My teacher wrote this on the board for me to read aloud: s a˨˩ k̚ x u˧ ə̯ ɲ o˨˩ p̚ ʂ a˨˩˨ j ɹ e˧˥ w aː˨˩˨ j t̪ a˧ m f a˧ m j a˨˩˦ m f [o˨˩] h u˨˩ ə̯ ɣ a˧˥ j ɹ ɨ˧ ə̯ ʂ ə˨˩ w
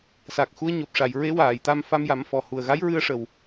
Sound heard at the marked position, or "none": ɔ˨˩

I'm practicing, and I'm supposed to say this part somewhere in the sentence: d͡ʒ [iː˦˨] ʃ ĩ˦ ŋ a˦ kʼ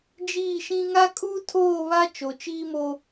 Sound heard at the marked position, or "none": iː˦˨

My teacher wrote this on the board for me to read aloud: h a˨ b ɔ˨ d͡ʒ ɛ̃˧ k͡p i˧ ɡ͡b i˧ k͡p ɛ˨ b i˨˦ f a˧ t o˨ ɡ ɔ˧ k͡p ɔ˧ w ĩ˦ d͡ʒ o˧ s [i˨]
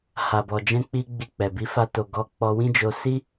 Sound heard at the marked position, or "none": i˦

